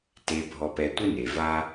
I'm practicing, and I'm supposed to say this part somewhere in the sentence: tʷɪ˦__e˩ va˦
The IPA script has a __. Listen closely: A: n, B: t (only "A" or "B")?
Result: A